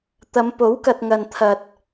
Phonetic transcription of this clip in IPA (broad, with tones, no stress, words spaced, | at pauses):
t̪ɐ˨˧m po˨˥wkɐ˨t̚ŋɐ˨n t̪ʰɐ˧t̚